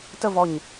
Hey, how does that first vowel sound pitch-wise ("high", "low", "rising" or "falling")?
falling